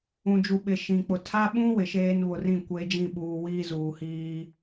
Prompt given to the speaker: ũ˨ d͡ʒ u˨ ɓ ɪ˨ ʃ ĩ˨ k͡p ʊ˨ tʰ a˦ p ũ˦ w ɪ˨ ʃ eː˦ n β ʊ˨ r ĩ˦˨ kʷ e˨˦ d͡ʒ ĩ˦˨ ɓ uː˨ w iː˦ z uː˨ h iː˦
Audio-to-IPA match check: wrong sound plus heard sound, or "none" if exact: p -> ɓ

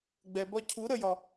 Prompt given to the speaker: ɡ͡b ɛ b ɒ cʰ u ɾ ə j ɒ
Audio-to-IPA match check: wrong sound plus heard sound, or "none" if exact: none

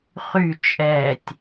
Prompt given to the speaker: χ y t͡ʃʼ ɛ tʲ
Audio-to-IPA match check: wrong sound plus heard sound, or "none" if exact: none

